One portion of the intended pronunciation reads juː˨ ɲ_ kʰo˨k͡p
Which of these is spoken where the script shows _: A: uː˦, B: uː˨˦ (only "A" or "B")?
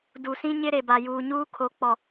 A